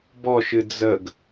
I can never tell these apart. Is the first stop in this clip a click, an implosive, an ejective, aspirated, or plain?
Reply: plain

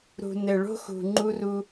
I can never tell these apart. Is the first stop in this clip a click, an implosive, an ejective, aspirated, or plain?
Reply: click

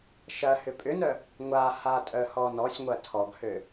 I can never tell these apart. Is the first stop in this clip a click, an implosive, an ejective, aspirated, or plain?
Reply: ejective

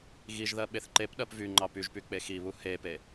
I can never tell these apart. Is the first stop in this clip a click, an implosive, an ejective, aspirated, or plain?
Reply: implosive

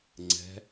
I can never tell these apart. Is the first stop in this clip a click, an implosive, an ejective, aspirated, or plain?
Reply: click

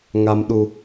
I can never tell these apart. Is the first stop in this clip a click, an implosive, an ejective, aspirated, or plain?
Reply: implosive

